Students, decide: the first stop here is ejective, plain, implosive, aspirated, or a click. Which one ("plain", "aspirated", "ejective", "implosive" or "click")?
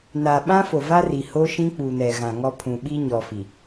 implosive